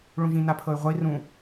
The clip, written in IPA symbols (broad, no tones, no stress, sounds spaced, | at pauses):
ɭ ũ ʒ ĩ n a pʰ ɤ y̯ ʁʷ ɛ i̯ r ũ